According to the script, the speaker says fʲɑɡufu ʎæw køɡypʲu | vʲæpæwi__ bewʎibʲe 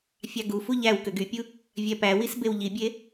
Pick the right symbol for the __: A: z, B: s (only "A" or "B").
B